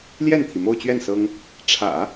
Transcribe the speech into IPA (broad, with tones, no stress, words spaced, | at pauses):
ljɛ˥˩nt̪ʰi˩mo˥˧ʊ̯t͡ɕɥɛ˥˩n sɤ˥ŋ | ʈ͡ʂʰä̰˨˩˦